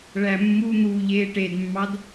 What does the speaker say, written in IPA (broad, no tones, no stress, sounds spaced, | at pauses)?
ɭ æ mː u n̪ uː ʎ eː ʈ e d mː ɑ d